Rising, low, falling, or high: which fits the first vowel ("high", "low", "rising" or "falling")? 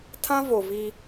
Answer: high